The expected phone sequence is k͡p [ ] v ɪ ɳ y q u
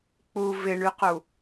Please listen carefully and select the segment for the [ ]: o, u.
u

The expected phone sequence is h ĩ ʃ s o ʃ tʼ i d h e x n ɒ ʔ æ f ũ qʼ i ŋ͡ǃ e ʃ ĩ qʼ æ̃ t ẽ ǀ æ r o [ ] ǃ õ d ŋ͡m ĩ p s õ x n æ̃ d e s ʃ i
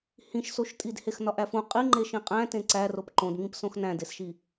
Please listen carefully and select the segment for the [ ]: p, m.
p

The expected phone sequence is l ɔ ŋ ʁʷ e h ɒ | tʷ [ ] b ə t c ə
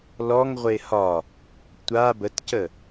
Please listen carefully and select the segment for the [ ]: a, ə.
a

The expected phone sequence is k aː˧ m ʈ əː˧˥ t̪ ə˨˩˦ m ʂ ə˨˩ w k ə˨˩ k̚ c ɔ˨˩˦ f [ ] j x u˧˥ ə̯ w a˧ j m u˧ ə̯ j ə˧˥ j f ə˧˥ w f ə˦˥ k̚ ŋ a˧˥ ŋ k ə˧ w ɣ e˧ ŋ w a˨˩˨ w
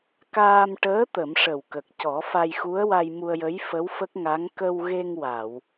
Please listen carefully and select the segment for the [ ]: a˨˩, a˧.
a˧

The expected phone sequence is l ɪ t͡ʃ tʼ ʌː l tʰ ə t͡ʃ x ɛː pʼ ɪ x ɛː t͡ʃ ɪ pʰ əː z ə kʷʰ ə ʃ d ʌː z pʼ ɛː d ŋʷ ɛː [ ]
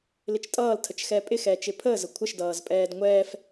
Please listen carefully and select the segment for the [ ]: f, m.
f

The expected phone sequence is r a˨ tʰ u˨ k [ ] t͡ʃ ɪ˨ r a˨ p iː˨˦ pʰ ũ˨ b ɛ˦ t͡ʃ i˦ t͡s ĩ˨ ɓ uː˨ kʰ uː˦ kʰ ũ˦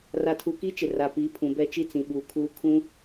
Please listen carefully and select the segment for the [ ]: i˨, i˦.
i˦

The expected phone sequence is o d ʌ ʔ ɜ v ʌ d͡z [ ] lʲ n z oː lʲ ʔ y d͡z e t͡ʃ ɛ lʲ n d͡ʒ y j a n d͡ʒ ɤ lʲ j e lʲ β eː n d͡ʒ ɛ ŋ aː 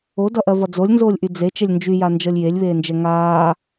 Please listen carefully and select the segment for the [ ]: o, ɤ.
o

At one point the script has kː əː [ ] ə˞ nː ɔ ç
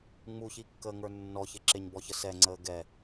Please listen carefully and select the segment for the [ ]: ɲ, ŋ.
ŋ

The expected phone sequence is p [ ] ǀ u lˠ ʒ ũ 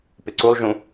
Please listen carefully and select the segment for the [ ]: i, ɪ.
ɪ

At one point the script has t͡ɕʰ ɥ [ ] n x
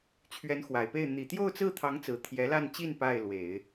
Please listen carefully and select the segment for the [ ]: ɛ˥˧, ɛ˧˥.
ɛ˧˥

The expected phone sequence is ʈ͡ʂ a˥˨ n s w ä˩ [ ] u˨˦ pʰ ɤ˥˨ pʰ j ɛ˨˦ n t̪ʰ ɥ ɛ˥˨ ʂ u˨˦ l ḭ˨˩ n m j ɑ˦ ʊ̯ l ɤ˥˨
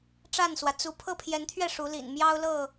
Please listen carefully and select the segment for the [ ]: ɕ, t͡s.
t͡s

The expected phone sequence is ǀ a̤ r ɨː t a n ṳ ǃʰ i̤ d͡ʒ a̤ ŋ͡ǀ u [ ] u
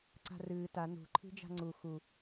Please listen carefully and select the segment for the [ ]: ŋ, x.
x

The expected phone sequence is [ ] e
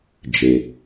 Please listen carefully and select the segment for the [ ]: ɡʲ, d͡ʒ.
d͡ʒ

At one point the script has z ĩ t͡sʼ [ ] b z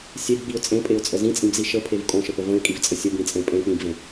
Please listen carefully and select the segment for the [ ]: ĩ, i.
ĩ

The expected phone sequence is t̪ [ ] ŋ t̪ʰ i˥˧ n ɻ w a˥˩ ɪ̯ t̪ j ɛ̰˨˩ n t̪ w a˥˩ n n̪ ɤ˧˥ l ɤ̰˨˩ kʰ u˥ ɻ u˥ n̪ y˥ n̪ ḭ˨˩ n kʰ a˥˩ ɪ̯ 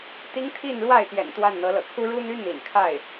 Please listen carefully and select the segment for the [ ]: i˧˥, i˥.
i˥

